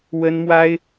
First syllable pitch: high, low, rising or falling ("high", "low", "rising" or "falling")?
high